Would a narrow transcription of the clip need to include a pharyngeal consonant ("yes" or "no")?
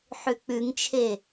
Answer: yes